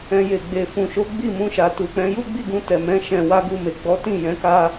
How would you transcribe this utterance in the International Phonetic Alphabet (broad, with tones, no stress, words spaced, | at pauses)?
ɛ̃˧ je˨ɡ͡be˨ fũ˨ʃo˨˦ ɡ͡bi˦˨mũ˧ʃa˨ tu˨k͡pɛ̃˨˦ ju˦ɡ͡bi˦˨ɡũ˧ tɛ˨mɛ̃˨˦ ʃɛ̃˧wa˦ɡu˦˨me˨ ɡ͡bɔ˨˦ tĩ˦˨jɛ̃˨˦ ka˧